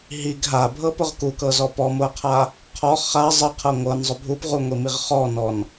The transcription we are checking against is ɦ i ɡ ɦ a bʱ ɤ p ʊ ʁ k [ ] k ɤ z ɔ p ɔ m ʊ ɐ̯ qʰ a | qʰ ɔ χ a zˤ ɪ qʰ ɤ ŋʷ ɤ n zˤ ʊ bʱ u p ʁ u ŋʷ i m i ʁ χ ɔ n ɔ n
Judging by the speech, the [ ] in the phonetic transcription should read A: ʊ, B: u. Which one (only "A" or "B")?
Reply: B